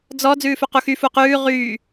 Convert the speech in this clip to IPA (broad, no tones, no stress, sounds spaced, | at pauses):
d͡z ɔ d͡z ʉː f ʉ q u x y f u q ʉː ʁ yː